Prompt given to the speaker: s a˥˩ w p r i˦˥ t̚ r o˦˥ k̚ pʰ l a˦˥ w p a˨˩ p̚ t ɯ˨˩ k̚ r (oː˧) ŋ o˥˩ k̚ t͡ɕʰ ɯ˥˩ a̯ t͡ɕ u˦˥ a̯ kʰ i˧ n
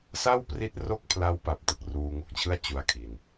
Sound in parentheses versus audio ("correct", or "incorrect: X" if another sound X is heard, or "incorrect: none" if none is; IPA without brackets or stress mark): incorrect: uː˧